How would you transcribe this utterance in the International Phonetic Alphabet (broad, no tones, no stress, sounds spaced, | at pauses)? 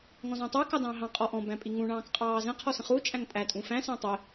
ŋ ɔ̃ z ɔ̃ tˤ ə˞ k ɑ d ɑ̃ː ɦ ɑ̃ qʼ ɔ ʔ ɔ̃ b æ̃ pʼ i ŋ ũ ɳ ɑ̃ː k qʼ ɑː z ə̃ qʰ ɔ s ə̃ χ uː t͡ʃʼ æ̃ ŋ tʼ æ tʼ ũ f æ̃ s æ̃ tˤ ɪ